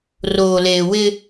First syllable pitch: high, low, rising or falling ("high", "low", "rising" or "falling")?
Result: low